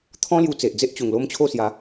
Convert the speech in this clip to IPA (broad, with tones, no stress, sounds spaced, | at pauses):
t̪ʰ ɔ̃˦ l j u˧ t͡s e˨ ʔ d͡z e˦ ʔ t͡ɕ u˨˩ ŋ l o˦ m t͡ɕʰ o˥˧ s j a˨˦